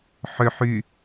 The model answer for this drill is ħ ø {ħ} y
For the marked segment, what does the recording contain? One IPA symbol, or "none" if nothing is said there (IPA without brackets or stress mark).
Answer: ħ